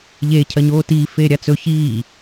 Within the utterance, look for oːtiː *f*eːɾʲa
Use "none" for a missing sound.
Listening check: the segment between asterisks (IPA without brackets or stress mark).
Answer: f